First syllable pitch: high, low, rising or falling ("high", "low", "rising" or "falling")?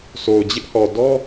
low